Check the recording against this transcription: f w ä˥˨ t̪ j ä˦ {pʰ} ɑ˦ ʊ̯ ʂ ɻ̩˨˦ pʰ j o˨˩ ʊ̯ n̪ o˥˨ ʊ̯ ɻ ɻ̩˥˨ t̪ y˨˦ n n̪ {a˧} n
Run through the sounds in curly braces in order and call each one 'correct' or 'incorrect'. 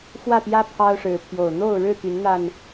correct, correct

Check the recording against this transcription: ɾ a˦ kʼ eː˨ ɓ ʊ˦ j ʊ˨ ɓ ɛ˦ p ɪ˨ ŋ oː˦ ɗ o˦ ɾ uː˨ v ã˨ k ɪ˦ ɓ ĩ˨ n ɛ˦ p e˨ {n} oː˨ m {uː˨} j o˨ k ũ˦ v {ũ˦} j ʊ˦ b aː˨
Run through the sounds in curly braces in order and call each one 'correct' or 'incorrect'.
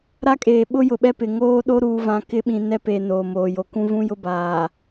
correct, incorrect: oː˨, correct

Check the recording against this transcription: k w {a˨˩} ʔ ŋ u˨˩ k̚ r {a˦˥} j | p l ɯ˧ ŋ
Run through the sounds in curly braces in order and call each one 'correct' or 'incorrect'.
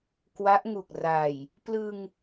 incorrect: a˦˥, incorrect: a˨˩

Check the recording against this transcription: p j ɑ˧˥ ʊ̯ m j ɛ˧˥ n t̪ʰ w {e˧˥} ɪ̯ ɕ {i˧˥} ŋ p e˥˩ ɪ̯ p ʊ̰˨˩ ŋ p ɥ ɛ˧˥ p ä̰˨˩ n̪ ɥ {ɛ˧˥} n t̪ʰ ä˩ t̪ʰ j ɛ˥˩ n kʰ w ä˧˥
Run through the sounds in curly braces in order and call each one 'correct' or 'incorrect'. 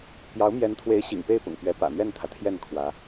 correct, incorrect: ḭ˨˩, incorrect: ɛ˥˩

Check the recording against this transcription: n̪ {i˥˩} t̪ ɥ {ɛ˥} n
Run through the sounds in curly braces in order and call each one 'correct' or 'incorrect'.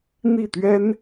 correct, correct

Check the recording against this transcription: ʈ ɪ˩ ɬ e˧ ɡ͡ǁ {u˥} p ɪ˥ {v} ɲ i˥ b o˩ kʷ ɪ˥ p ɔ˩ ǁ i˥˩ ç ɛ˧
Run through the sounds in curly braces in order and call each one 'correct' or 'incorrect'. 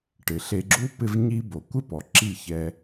correct, correct

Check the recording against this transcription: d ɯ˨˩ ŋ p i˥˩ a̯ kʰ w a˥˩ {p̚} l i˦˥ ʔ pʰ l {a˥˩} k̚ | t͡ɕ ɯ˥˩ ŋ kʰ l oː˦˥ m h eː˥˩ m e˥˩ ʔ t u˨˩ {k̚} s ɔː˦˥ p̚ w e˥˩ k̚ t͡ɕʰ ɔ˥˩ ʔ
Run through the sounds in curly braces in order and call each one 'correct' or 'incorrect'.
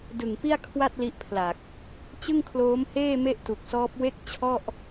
incorrect: t̚, incorrect: a˨˩, correct

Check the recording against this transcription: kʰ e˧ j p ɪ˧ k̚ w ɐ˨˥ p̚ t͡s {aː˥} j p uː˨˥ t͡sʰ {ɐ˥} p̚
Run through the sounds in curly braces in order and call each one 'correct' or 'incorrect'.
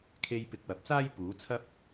correct, correct

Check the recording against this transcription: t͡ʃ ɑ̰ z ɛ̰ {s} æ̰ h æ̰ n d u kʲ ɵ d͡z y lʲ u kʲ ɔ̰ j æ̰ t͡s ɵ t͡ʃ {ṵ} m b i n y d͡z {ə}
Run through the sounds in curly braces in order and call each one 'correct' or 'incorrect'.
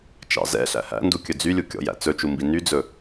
incorrect: ɬ, incorrect: u, incorrect: ɵ

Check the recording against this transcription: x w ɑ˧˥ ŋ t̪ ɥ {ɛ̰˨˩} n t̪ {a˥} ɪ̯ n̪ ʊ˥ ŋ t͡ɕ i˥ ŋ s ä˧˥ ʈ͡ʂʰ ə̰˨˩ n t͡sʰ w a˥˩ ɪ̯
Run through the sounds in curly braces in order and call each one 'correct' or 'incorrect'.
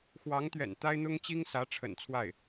correct, correct

